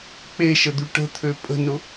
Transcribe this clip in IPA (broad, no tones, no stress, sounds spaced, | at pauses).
k͡p e ʃ ə d̪ y ʈ ə̤ t̪ʰ ø pʼ ə̤ n ʊ